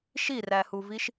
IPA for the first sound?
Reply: ʃ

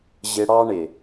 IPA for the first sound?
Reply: ʑ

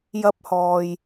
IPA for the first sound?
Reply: j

